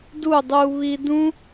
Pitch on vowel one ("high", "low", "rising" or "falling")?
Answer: falling